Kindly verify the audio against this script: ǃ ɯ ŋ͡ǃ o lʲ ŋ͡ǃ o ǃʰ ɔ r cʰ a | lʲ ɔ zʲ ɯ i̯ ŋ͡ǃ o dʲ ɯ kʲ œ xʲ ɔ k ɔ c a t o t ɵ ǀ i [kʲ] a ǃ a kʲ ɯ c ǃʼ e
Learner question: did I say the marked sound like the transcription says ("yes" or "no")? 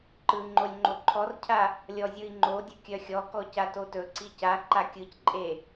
no